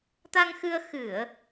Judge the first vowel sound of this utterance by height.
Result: low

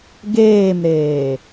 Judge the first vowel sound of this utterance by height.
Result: mid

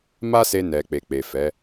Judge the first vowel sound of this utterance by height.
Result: low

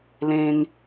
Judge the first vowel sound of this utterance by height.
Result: mid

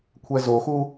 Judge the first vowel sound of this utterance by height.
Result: mid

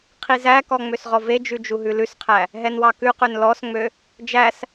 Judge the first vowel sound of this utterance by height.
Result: high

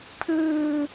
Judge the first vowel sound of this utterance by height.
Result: high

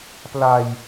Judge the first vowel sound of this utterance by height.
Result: low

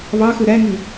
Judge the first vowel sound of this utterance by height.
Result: low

